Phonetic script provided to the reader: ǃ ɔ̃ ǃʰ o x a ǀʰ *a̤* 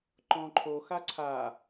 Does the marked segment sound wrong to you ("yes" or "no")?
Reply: yes